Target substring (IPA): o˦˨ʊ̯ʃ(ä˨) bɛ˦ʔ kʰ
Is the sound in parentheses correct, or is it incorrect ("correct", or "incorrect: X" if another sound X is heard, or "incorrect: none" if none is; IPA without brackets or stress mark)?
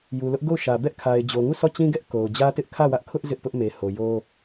correct